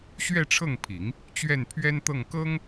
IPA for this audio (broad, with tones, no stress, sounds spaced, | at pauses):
ɕ ɥ ɛ˥˧ ʈ͡ʂʰ ɤ˥˩ ŋ pʰ i˨˩˦ ŋ | t͡ɕ ɥ ɛ˥˩ n pʰ ɥ ɛ˥ n t̪ ɤ˥˩ ŋ k ɤ˥ ŋ